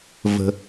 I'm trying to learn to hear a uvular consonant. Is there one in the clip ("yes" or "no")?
no